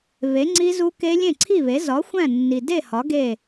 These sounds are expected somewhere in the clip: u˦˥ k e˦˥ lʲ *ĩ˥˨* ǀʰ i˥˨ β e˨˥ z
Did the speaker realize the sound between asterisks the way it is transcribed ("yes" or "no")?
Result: no